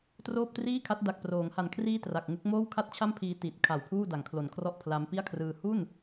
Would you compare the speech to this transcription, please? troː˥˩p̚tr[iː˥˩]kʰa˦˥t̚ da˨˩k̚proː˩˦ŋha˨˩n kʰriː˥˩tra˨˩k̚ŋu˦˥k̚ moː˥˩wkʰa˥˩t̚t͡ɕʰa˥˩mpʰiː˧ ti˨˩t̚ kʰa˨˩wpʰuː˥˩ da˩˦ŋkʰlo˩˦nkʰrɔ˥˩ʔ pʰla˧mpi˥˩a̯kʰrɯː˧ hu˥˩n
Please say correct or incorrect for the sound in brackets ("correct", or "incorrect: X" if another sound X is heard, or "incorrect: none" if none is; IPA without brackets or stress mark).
correct